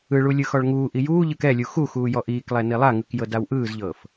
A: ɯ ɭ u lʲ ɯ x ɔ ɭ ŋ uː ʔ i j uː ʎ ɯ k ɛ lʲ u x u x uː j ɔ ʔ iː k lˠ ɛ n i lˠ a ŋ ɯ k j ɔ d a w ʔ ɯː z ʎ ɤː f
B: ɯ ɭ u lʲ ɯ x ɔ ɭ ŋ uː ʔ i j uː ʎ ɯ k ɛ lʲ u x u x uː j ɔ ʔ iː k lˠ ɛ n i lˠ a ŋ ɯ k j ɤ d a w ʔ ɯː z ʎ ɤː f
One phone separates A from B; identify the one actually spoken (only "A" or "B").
B